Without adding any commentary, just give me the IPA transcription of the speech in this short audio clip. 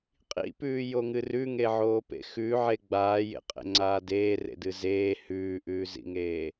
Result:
qʼ ḭ p ʉː j o ŋ ɨ r ʉ ŋ e ʕ oː p ḛ x ʉ ʕ e ɡ͡b aː j ḛ qʼ ḛ ŋ͡ǀ aː d eː r ḛ d ɨ z eː h ʉː ʔ ʉː z ḭ ŋ eː

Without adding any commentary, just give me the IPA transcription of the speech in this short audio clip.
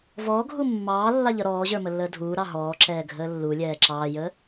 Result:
v ɔː ɡʱ u mː ɑː lː ɑ ʎ ʌ ɾ ɔː ʑ ə˞ m ə lː əː dʱ uː ɾ ɑ ɦ ɔː ǁ ɛː ɡʱ əː lː u lʲ ɛː ǁ ɑː j əː

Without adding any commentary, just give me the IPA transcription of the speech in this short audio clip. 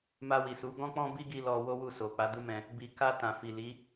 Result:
m a˧ w i˨ s u˨˦ ɡ ɔ̃˦ k͡p ɔ̃˦ b i˦ ɡ i˧ l ɔ˧ w o˦ w u˦˨ s o˨ k͡p a˨˦ d u˦ m ɛ̃˧ | b i˨ k a˧ t ã˨ f i˨ l i˨˦

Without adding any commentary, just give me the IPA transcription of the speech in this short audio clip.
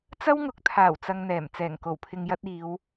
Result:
t͡s ɐ˥ w ŋ ʊ˨˥ k̚ t̪ʰ aː˨˩ w t͡s ɐ˧ ŋ n̪ ɛː˨˩ m t͡s ɛː˨˩ ŋ k o˨˩ w pʰ ɪ˨ ŋ j ɐ˧ t̚ iː˨˧ w

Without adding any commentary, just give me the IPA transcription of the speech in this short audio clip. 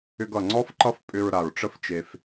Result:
ʏ˧ ɡ ʌ˩ ŋ͡ǀ ɔ˥ f ǃ ʌ˥ f pʼ ʏ˧ ɹ ɾ a˩ ɹ ʈ͡ʂ ə˥ f t͡ʃ e˧ f

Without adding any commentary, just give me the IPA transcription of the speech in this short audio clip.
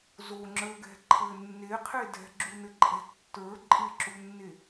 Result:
z o ŋ͡ǁ ə˞ ɡ ɛ̤ ǃʰ ɘ nː e qʰ e d ɛ̤ ɡ͡ǁ u n ɘ ǃʼ ɛ̤ tː ə˞ ǃʼ ɪ ǁ u nː e

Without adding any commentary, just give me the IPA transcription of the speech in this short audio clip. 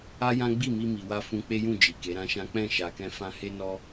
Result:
a˦ j ã˦ ɡ͡b i˦˨ m i˧ m i˨ w a˧ f ũ˧ k͡p e˦ j ũ˦˨ d͡ʒ i˨ k e˨˦ ɾ ã˦ ʃ ã˦ k͡p ɛ̃˦˨ ʃ a˨ k ɛ̃˧ f ã˧ h e˧ n ɔ˧

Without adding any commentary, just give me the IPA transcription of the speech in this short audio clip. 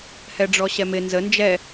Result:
h ɛ ɖ͡ʐ ɔ ɕ ɛ m ɪ n z ə n d͡ʒ ɛ

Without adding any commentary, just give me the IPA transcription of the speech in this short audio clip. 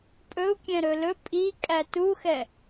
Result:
pʼ ɵ u̯ kʲ ɛ̃ ɾ ɵ l ɵ pʼ i kʼ æ t u x ɛ

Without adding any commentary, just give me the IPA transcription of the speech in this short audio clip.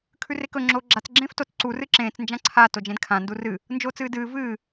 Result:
kʰ ʉ r e k ɵ ŋ͡ǁ oː ɡ͡ǁ a t͡s ɡ͡ǁ ẽː f t o t͡s ǀ u r ɨ ǁ ẽː t͡s n d͡ʒ ã ǀʰ a t o d͡ʒ ẽ d kʰ ã n d u r ɨ | n d͡ʒ oː t͡s ɨː d ɨː v ɨː

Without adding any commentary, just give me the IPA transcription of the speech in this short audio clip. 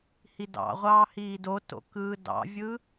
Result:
h i d ɑ̰ ʁʷ ɑː h iː d o t o̰ k ɯː d ɑ̰ vʲ ɯ

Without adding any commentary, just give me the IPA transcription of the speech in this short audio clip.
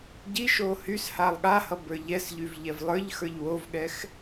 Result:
ɟ i ʃ o h y s h a lˠ ɠ a h ʌ b ə˞ ʎ ɛ s ʎ y v ʎ ɛ v lˠ ə˞ ʎ x ə˞ ʎ w o v ɠ ɛ x

